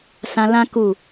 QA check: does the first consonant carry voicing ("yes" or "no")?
no